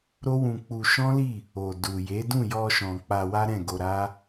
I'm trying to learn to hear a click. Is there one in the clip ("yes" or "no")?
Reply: no